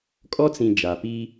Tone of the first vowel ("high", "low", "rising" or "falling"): high